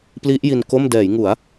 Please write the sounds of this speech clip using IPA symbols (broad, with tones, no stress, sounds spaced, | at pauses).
p l i˦˥ ʔ j i˧ n k o˥˩ m d ɛː˩˦ j ŋ u˩˦ a̯